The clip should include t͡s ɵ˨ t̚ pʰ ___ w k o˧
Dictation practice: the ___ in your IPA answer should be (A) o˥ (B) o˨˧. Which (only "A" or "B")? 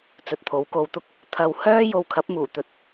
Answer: B